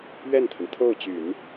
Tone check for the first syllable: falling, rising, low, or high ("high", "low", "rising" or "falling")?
falling